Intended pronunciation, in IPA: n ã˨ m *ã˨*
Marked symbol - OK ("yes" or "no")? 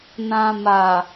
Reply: no